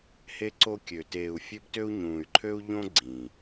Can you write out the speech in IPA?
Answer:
h e˦ ǀ o˦ kʲ ø˨ t eː˨ u̯ fʲ ø˦ b t ø˦ u̯ ɲ ũː˨ y̯ ǃʰ ø˦ u̯ ʎ õ˦ ɡ͡ǀ ĩ˨

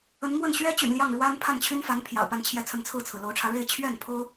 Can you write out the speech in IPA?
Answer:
ə˧˥ n m w ə˥˩ n ɕ ɥ ɛ˥ t͡ɕ y̰˨˩ n l j ɑ˥˩ ŋ ɻ w a˥ n pʰ a˥˩ n t͡ɕʰ y˥ n f a˧˥ n pʰ j ɑ̰˨˩ ʊ̯ p a˥˧ n t͡ɕʰ j ɛ˥˧ t͡sʰ ə˥˧ n t͡sʰ ɹ̩˥˩ t͡sʰ ɹ̩˩ l o˧˥ ʊ̯ ʈ͡ʂʰ ä˧ ɻ e˥˧ ɪ̯ t͡ɕʰ ɥ ɛ˥˩ n pʰ o˥ ʊ̯

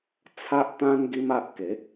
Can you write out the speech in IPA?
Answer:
t͡sʰ a˦ ʔ t̪ ã˦ n ɡ i˦ m a˦ ʔ k e˨˦

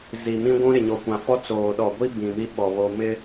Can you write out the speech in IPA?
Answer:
z i˨ m ĩ˦ ɡʷ ũ˦ ɾ ɪ˨ ɲ o˨ kʷ ã˨ f ɔ˦ t͡s oː˨ ɗ ɔ˨ ɡʷ i˦ b ĩ˨ m i˦ ɓ ɔ˨ β o˨ m ɪ˦

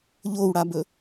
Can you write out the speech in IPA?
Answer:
ʎ o w ɽ a b ɵ

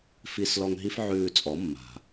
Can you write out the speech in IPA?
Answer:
f i˧ s l ɔ˧ ŋ ɦ i˦ f ʕ ʉː˧ t͡sʼ ɔ˨˦ mː a̤˨

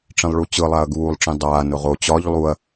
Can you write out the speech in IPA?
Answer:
ʈ͡ʂ ĩ lˠ ɭ u t͡ɕ ɯ lˠ a ɐ̯ ɡ uː lˠ ʈ͡ʂ ĩ dˤ aː n ʊ ʁ o t͡ɕ ɒ ʎ lˠ u ɐ̯

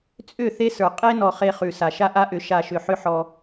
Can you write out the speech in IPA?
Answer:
t͡sʼ ʏ˦˨ θ e˦ s ə˞˨ qʼ e˦ n ɔ˨ χ e˧ χ ʉ˨ s a˨ ʃ a˦ ʔ a˦ ʔ ʏ˨˦ ʃ a˨ ʃ ʏ˨ ħ ʏ˧ ħ ɔ˧

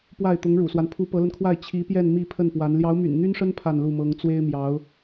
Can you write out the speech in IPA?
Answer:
p w a˥˩ ɪ̯ t̪ ʊ˧˥ ŋ ɻ ṵ˨˩ s w a˦ n pʰ u˧˥ p ɤ˧˥ l ə˧ n kʰ w a˥˩ ɪ̯ t͡ɕʰ i˧˥ p j ɛ˥˧ n m i˥˧ pʰ ə˥˩ n p w a˧˥ n l j ɑ˧˥ ʊ̯ m y̰˨˩ n n̪ y˥ n ʂ ə˥ n pʰ a˥˧ n l u˥˩ m ɤ˧˥ ŋ t͡s w e˥ ɪ̯ m j ɑ˧˥ ʊ̯

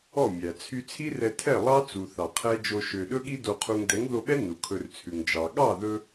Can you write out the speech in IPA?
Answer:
ɔ˦˨ mʲ æ˨ t͡sʰ y˧ t͡sʰ i˦ r ɛ˧ tʰ ɛ˦˨ lˠ ɑ˦ t͡s u˨ θ ɑ˨ qʰ ɛ˦ d͡ʒ o˧ ʃ ø˨ ɗ ɵ˦ ɠ i˦ d o˧ qʰ u˧ ŋ d ɛ˨˦ ŋ ð o˧ ɓ ɛ˦ n u˨ kʰ ɵ˧ r t͡sʰ ʉ˨ ŋ d͡ʒ ɑ˨ ɠ ɑ˦˨ ð ɵ˧

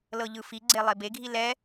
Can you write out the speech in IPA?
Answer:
l ɤ ʎ ɯ f i ɡ͡ǀ e lˠ e b e ɡʱ i l ɛ

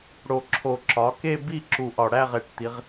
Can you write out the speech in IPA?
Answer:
ɽ o˨˩ ǁʰ o˨˩ ǁ ɒ˩˧ k e˦˨ b i˦˨ ǁ u˨˩ ʔ ɒ˨˩ ɽ æ˦˨ ʁ e˨˩ ʈ t̪ i˩˧ ʁ

